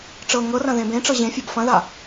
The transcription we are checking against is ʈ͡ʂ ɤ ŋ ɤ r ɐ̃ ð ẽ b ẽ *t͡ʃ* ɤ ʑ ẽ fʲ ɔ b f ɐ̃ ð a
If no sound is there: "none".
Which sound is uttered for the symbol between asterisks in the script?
ʈ͡ʂ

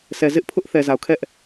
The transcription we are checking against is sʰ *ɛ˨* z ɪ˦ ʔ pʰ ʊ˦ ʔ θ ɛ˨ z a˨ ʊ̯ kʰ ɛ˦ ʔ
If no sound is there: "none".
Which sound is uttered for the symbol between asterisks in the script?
ɛ˨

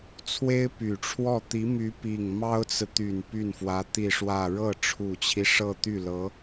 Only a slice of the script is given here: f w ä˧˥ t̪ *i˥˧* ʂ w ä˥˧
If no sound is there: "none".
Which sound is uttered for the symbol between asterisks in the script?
i˥˧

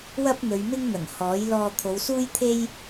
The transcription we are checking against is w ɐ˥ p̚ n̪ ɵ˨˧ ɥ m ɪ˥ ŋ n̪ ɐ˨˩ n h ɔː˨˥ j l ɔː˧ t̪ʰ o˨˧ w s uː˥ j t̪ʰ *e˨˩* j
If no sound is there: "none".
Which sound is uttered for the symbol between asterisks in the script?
e˥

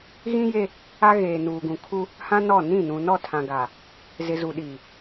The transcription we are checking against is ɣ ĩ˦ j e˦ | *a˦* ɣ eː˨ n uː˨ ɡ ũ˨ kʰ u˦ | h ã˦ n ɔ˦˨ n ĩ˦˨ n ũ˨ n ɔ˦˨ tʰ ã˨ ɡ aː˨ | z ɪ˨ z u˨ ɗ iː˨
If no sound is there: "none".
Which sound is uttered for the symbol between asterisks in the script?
a˦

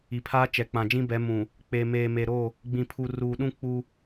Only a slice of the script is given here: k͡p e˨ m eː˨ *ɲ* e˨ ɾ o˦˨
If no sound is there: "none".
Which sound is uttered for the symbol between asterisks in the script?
m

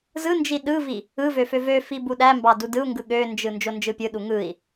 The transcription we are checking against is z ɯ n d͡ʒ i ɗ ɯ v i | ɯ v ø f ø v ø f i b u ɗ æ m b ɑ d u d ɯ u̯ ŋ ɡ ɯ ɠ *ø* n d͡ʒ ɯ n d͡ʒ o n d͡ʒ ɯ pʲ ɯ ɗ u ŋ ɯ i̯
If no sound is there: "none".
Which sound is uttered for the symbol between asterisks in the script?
ø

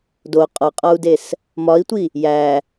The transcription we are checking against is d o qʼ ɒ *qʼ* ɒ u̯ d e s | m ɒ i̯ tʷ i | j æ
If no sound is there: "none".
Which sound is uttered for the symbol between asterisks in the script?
qʼ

